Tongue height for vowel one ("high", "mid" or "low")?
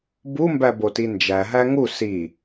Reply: high